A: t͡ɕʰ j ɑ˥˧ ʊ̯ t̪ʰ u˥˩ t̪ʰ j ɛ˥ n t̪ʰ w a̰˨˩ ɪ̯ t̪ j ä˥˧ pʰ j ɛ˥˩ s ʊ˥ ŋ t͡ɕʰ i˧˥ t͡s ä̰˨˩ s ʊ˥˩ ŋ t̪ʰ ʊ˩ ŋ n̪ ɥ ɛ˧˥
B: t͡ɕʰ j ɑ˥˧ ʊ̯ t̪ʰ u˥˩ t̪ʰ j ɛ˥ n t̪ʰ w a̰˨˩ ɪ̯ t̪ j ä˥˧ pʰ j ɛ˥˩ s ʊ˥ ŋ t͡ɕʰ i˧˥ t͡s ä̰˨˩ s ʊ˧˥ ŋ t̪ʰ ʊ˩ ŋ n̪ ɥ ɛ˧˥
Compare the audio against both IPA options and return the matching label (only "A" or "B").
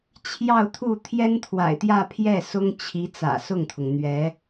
A